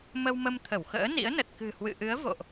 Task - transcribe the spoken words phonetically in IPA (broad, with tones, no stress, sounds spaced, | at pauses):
m ə˧ w m ə˧ m t̪ʰ ə˧˩ w x ə̰ː˧˥ n ḭ˧˥ ə̯ n ə˨˩ t̚ k ɨ̤˨˩ h w ɨ̰˧˨ ʔ ɨ˨˦ ə̯ v o̰˧˨ ʔ